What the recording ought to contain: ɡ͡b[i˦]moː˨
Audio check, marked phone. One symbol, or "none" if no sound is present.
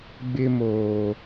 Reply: ɪ˦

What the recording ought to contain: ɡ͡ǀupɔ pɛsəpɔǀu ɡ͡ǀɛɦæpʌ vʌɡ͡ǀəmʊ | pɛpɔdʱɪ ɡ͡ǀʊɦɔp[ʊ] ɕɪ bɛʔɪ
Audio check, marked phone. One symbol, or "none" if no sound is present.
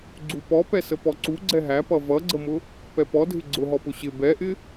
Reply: ʊ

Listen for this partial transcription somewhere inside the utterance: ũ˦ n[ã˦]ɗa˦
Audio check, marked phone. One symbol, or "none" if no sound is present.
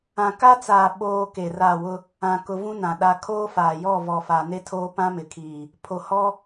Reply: ã˨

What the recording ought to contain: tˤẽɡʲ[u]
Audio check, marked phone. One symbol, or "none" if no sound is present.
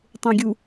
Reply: u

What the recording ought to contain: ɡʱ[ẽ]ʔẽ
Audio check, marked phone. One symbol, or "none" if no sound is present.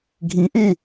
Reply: ĩ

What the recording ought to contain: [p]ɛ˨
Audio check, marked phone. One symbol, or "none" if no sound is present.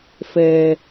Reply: f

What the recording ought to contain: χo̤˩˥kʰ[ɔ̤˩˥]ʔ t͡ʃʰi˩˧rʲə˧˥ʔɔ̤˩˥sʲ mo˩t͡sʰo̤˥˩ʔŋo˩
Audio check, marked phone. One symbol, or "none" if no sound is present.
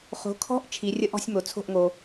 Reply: ɔ̤˧˥˧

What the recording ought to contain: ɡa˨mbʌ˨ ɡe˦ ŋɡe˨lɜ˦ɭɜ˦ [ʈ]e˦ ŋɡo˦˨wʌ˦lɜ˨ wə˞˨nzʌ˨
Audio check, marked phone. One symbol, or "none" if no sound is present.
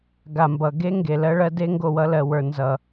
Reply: d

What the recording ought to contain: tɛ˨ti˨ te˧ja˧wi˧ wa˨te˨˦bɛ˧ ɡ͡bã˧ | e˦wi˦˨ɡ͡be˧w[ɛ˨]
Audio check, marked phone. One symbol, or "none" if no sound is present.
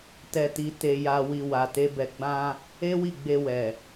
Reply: ɛ˨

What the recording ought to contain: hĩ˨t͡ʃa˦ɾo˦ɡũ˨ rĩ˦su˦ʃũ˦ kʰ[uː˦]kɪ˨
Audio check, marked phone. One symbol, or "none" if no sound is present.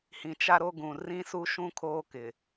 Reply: oː˦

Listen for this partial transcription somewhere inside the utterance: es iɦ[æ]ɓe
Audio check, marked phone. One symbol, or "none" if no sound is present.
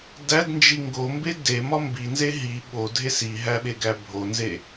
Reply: æ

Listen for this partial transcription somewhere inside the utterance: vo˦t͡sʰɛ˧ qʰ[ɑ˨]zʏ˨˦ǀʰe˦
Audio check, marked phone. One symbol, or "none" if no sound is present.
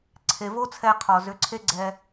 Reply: ɔ˨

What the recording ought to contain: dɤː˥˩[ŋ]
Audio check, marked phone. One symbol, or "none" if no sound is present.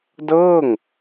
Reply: ŋ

